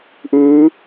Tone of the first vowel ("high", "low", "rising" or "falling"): rising